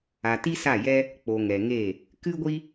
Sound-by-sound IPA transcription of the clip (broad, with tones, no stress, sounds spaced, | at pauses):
a˨ t i˦ s a˦˨ j ɛ˦ | k͡p o˨ ŋ ɛ˨ ŋ e˦˨ | k ɨ˦ ɡʷ i˦